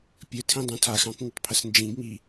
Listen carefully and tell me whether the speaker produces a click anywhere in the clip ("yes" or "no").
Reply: no